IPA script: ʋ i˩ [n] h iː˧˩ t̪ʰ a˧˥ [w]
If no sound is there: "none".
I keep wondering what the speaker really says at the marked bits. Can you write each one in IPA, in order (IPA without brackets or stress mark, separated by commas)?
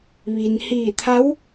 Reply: n, w